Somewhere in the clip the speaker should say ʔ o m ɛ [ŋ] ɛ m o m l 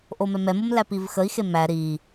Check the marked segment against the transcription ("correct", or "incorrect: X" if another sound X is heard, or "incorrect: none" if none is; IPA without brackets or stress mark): incorrect: m